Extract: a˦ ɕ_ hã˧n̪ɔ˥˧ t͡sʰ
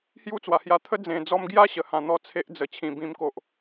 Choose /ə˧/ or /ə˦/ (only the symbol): ə˧